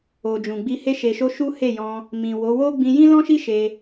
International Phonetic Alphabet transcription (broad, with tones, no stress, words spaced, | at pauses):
o˨d͡ʒũ˨ɡ͡bi˧ he˧ʃe˨ʃo˧ ʃu˦he˦˨jɔ̃˧ | mĩ˨wo˨˦ wo˦ɡ͡bĩ˧ jĩ˦lɔ̃˦ʃi˦ ʃe˧